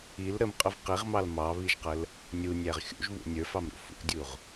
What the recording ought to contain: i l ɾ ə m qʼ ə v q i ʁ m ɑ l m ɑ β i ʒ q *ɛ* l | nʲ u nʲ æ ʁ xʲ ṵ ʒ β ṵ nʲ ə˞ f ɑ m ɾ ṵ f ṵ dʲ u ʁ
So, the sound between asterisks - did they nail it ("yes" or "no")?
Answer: no